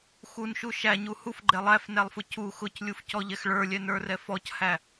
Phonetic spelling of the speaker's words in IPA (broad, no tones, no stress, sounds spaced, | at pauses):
x u n ʃ u ʃ æ ɲ u h u f ɡ͡ǃ ɛ lˠ æ f n æ lˠ f ʊ c u x ʊ c lʲ u f c ɔ ʎ ɛ x ɭ ə˞ lʲ ɛ n ə˞ r ɛ f ɔ c h æ